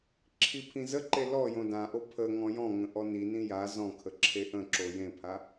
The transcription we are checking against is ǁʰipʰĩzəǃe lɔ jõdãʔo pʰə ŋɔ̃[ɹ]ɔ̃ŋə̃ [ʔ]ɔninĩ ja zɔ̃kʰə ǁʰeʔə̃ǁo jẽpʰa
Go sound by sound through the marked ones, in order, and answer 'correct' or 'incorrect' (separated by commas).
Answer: incorrect, correct